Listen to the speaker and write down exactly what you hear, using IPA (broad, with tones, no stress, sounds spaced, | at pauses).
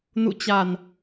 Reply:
n ṵ˧˨ t͡ɕ a˨˩ n